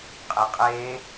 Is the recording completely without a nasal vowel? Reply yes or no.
yes